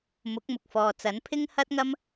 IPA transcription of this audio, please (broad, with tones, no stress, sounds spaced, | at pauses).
m ʊ˨˥ k̚ m ʊ˨ k̚ f ɔː˨ t͡s ɐ˨˥ n pʰ ɪ˥ ŋ h ɐ˥ t̚ ŋ ɐ˥ m